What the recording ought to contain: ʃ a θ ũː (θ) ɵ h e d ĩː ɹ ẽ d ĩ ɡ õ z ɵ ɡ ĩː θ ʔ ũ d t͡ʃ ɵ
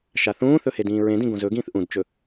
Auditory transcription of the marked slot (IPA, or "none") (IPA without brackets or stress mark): θ